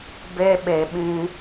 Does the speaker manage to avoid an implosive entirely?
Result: no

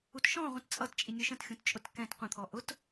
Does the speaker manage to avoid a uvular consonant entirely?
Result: no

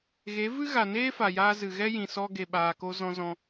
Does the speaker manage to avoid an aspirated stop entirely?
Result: yes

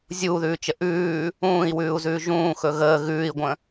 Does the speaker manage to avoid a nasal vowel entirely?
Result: no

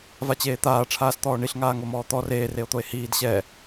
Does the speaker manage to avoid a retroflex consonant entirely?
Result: no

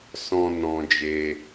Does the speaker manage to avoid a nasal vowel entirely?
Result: no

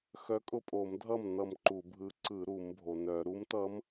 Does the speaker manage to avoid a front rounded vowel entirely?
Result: no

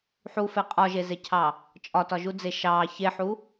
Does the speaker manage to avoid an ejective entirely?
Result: no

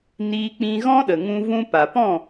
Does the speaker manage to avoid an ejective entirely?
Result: yes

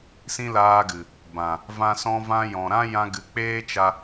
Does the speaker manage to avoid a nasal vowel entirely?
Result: no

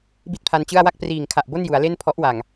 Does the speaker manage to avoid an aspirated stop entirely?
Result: no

